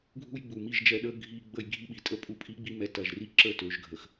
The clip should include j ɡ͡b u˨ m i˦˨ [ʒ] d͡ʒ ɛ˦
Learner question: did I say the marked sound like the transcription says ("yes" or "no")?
yes